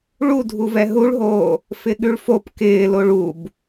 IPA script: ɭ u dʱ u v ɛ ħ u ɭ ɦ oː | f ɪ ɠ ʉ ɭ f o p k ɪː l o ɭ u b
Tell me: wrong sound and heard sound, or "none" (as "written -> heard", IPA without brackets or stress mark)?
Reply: ħ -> ɦ